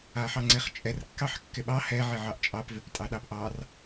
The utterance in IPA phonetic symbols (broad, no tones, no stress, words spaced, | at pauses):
aħɑŋ͡ǀeχt͡ʃʼɛr kːɑħkːɪɓɑ hɛ ʕɪʕɑʔt͡ʃʼɑp vɪptʼɑɗɑpʔɑr